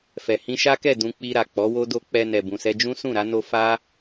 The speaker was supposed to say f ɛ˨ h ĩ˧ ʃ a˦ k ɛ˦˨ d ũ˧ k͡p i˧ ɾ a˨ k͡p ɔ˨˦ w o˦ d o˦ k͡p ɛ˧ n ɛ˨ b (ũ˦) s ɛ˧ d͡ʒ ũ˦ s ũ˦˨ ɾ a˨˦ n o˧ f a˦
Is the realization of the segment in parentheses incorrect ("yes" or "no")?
yes